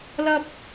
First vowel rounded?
no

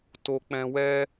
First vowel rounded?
yes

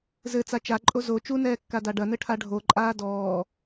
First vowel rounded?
no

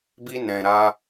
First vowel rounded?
no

